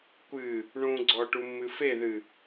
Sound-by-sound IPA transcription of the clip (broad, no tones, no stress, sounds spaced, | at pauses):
kʷ ɨ | ɳ ũ ɡ͡ǀ ɔ ʈ u mː ɨ f e ð ɨ